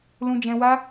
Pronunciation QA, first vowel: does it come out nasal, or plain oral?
nasal